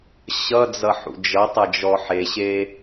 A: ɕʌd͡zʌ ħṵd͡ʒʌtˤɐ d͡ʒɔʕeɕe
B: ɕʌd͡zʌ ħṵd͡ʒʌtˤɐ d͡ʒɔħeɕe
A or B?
B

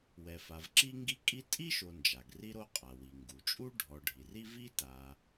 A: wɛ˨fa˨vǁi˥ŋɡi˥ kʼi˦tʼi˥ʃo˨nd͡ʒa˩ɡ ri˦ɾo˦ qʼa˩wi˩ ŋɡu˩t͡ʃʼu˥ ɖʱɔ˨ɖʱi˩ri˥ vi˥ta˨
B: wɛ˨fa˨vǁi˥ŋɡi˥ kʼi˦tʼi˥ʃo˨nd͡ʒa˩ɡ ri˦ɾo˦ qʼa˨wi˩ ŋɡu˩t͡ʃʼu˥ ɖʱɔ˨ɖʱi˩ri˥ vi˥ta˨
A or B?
A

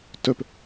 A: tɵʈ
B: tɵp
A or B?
B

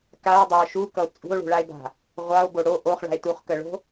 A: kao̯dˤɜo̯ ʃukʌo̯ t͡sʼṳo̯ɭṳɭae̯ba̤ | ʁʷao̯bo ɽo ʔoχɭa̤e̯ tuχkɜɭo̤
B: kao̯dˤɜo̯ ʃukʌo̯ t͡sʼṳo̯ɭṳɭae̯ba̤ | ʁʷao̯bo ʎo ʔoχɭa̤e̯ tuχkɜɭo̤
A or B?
A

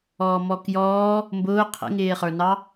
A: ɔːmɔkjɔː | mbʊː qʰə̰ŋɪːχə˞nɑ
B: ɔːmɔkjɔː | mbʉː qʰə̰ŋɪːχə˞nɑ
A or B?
A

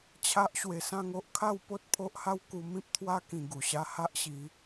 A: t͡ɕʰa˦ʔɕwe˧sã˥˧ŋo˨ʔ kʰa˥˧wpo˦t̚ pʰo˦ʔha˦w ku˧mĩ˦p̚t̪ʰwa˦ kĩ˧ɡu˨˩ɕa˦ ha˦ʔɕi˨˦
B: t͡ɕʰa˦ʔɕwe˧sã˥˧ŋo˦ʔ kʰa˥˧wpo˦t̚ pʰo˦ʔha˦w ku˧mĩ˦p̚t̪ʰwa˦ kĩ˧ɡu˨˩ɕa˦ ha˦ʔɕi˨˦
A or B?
B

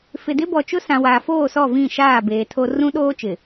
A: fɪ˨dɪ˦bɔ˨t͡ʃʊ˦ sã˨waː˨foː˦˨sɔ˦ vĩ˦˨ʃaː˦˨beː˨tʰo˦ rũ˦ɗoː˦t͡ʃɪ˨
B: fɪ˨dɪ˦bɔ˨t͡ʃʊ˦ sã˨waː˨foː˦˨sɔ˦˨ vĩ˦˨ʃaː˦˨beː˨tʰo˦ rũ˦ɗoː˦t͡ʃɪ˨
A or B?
B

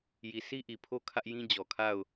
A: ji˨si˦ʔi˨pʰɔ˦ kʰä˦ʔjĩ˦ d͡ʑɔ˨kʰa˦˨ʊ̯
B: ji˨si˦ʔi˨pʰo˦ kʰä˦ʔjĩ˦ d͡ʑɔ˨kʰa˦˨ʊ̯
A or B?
B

